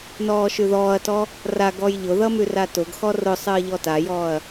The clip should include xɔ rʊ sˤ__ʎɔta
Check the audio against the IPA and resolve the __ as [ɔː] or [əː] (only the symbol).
əː